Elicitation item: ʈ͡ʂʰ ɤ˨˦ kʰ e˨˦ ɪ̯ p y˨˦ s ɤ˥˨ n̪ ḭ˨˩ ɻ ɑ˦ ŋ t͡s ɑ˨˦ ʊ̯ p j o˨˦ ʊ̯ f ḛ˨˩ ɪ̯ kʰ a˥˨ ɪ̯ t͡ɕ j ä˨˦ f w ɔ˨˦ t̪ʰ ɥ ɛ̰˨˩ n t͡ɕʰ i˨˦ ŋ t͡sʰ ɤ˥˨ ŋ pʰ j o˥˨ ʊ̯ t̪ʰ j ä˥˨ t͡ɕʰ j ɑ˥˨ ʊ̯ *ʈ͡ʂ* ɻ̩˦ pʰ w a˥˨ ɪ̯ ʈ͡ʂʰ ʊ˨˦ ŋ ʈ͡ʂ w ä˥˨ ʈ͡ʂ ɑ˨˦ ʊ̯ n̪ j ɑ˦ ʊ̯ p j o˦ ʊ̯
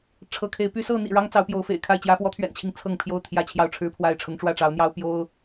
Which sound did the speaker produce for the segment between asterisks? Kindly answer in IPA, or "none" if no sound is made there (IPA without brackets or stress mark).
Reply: ʈ͡ʂʰ